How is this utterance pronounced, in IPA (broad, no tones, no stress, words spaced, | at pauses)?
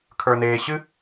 kʰə˞neːɕɨ